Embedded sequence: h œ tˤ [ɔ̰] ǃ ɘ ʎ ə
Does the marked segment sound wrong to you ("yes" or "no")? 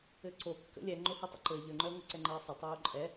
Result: yes